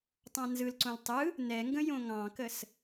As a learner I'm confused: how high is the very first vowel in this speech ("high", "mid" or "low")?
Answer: low